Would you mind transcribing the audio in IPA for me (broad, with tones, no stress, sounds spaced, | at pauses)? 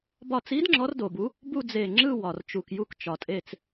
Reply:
b ɒ˧˩ t͡s i˧˥ d ŋ͡ǁ ɔ˧˥ r d o˩ b u˧˥ | b u˥˧ d͡z e˧˩ ŋ͡ǁ ɯ˥˧ w ɒ˩ r t͡ʃ u˩ k j u˧˩ k t͡ʃ ɒ˩ tʼ e˧˩ t͡s